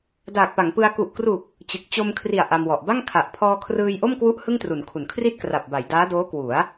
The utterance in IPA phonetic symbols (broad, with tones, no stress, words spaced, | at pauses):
daː˨˩k̚pa˩˦ŋpɯ˧a̯ ku˨˩ʔkru˨˩k̚ | t͡ɕɯ˨˩k̚ t͡ɕo˧mkʰri˨˩a̯ ʔa˧mwɔ˨˩ʔ ba˥˩ŋkʰa˨˩ʔ pʰɔː˧kʰrɯː˧jʔo˥˩mkwu˦˥ʔ hɯ˥˩ŋtru˩˦nkʰu˩˦n kʰri˥˩t̚ kra˨˩p̚ba˩˦j daː˦˥doː˦˥kwu˩˦a̯